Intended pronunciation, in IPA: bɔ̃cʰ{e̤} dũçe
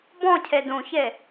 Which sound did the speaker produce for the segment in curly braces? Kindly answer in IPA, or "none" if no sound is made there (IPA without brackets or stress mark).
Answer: e